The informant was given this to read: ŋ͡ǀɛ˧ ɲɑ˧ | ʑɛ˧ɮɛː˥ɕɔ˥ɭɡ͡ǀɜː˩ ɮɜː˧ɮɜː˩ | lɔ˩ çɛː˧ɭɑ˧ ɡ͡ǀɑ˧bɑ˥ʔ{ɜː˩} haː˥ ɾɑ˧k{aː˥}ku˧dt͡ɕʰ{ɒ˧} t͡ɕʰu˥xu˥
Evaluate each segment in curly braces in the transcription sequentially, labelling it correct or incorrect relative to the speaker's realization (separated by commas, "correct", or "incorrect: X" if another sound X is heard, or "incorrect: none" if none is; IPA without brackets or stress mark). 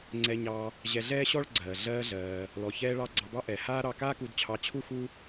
incorrect: ɛː˩, correct, incorrect: ɑ˧